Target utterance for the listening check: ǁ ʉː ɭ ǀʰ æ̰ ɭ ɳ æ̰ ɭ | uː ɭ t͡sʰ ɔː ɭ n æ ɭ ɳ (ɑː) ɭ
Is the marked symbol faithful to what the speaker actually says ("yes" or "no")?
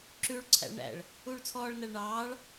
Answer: yes